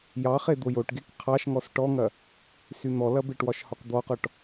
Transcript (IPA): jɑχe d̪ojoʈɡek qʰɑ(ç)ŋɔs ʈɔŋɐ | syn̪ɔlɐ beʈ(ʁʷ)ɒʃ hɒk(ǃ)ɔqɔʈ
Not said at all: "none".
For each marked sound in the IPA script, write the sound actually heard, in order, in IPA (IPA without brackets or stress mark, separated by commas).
ʃ, w, d̪